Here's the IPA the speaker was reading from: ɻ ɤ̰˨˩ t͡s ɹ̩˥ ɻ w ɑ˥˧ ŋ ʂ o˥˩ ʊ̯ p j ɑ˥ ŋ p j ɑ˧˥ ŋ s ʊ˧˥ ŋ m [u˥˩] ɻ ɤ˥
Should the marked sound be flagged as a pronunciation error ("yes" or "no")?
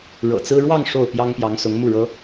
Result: no